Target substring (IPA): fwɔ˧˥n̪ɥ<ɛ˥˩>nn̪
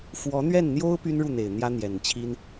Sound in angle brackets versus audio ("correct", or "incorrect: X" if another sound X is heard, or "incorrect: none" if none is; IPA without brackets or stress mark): correct